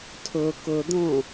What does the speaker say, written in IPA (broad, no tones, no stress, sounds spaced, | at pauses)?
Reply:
tʰ ʊ k ʊ d̪ õ